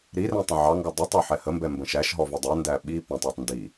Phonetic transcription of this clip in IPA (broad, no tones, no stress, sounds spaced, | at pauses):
ɾ i r ɛ̃ tˤ ə̃ ʕ ɑ ŋ ɡ ɔ dˤ ʌ tˤ ɒ ħ ɛ h ə m b ɛ m b ə̃ ʃ æ ʃ ɦ ɔ v ʊ dˤ ʌ n d æ ɓ i p ɛ̃ tˤ ɑ tˤ n d i